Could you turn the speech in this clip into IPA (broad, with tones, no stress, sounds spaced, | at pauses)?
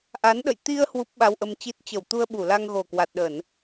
ʔ a˨˦ n ɗ ə̰˧˨ j t̪ i˧ ə̯ h w u˦˥ p̚ ɓ a˧ w ʔ ə˧ m t͡ɕ i˦˥ t̚ t͡ɕ ə˧˩ w t̪ u˧ ə̯ ɓ u˧˩ l a˧ ŋ ɣ o˨˩ k w a˨˩ t̚ ɗ ə˧˩˨ n